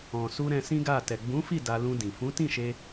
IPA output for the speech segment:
ɔ̃˨ s u˧ ɾ ɛ̃˧ s ĩ˦ ɡ a˦˨ t ɛ˨ ɡ͡b ũ˨˦ f i˦˨ d a˧ l ũ˧ d ĩ˨ f ũ˨˦ t ĩ˦˨ ʃ e˧

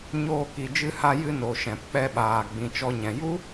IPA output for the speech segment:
ɲ oː˧ k i˨ d͡ʒ ɨ˧ h a˧ j ɨ˧ n o˨ ʃ ɛ̃˨ p k͡p ɛ˧ ɓ aː˨ ɡ͡b ĩ˨ t͡ʃ ɔ˧ ɲ ɛ̃˨ j u˦

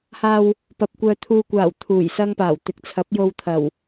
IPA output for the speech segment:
h aː˧ w | p ɐ˨ p̚ kʷ œː˧ t̪ʰ uː˧ kʷ aː˨˩ w t̪ʰ uː˨˩ j s ɐ˥ ŋ p aː˨˩ w t̪ ɪ˨ k̚ t͡sʰ ɐ˨˥ p̚ j o˧ w t̪ʰ ɐ˨˩ w

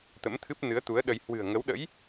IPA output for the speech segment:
t̪ ə̰˧˥ m t̪ʰ ɨ˦˥ p̚ n ɨ˨˦ ə̯ t̪ u˨˦ ə̯ ɗ ə˧ j h w ɨ̤˨˩ ə̯ ŋ ə˨˦ w ɗ ə̰˧˥ j

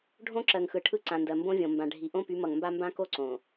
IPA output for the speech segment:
ɖʱ õ˦ ǁ ɜ˨ ŋ x ɯ˨ ʈʰ ɯ˦˨ ǀ ã˨ n d ɜ˨ m b õ˦ vʲ õ˨ m b ã˨ ɖʱ i˨ ʔ õ˦ p y˨˦ m ʌ˨ ŋ m b a˦ m b ã˦ k o˦ ǀ õ˨

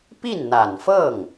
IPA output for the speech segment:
p i˥˩ n n̪ a˨˩ n f ɤ˥˩ ŋ

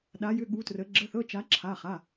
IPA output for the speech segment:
ɗ a˧˥ j ʏ˧˥˧ ɠ u˧˥ t r ə˧˥ ɡ͡ǁ ə˧˥˧ θ ɤ˧˥˧ t͡ʃ a˧˥ ǁʰ a˧˥˧ χ a˧˥˧

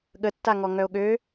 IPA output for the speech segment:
ɠ ə tː a ŋ ɔ ŋ œ o̯ ɠ ø

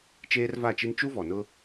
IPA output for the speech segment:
t͡ʃ eː˦ r v a˦˨ t͡ʃ i˦ n t͡ʃ u˦ v ɔ˨ n ʊ˦

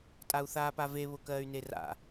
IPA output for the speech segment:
tʼ a u̯ θ aː p a v e β ʊ k ɜː y̯ n e r a̰

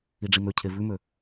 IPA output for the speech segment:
i ɖ͡ʐ i m ø cʰ e v ʉ m ø

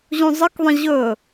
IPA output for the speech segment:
ʑ ũ zˤ ə k ðˤ ə̃ ʑ ɵ

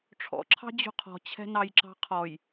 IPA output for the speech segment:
ʈ͡ʂʰ ɔ̰ ǁʰ ɑ̤ d͡ʑ ṳ qʰ ɔ̤ t͡ɕʰ ɛ̤ n ɑ j ǁ ɑ̤ qʰ ɔ j

